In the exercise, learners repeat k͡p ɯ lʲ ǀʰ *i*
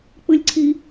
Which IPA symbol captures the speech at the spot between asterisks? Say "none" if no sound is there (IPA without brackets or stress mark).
i